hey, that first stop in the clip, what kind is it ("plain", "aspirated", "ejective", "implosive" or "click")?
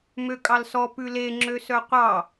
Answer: ejective